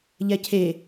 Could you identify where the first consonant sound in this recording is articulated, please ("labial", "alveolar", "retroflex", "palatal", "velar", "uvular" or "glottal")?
palatal